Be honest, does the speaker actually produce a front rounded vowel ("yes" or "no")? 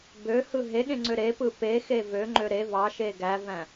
yes